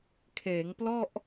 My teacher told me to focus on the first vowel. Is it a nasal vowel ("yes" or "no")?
no